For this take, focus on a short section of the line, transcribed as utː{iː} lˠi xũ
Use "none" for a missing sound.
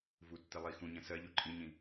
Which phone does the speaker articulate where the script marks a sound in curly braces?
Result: i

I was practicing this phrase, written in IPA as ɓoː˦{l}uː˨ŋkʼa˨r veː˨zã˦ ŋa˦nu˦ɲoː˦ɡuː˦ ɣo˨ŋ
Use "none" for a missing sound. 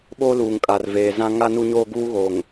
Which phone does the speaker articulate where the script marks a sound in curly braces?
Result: l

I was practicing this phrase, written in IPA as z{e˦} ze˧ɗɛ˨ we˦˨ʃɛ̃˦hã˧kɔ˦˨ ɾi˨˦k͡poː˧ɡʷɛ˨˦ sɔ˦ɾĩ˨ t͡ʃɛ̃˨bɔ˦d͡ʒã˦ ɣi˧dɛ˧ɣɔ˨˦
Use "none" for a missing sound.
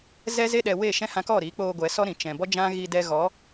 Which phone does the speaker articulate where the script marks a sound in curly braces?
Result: ɛ˦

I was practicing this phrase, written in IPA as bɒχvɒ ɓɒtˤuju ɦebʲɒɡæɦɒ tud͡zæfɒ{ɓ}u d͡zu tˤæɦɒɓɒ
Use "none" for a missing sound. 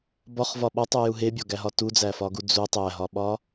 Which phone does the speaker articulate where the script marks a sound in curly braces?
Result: ɡ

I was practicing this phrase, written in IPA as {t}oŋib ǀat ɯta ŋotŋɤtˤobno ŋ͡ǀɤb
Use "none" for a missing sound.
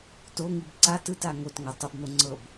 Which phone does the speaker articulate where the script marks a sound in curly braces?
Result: t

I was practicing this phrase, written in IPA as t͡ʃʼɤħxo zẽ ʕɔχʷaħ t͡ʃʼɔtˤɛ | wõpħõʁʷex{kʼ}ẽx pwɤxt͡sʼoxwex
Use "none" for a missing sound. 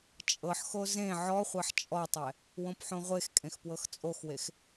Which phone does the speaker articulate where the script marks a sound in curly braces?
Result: kʼ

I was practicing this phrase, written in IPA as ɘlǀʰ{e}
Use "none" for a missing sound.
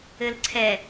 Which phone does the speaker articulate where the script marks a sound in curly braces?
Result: ɛ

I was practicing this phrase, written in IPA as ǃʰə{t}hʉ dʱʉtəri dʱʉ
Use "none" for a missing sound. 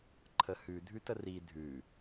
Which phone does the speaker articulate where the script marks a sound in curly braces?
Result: none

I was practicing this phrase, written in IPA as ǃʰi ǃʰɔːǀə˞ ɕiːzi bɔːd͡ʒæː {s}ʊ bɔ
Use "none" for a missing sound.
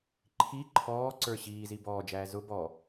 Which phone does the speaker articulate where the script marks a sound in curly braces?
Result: z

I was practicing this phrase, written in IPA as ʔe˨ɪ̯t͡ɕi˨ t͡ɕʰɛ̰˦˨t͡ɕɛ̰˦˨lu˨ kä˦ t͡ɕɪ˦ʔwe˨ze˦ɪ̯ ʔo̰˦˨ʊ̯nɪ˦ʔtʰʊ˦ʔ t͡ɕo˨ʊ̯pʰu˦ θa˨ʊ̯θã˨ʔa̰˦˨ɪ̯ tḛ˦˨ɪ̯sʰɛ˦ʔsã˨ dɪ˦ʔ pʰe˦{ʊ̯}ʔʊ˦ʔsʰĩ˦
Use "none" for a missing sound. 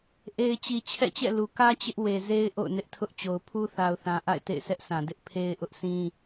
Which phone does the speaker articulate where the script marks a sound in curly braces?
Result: ɪ̯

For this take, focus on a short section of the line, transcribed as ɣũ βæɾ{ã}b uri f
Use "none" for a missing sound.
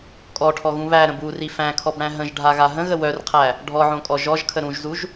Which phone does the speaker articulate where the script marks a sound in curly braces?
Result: ə̃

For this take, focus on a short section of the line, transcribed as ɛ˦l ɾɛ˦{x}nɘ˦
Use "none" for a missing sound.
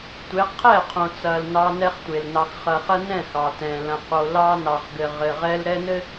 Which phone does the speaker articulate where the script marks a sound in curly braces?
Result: none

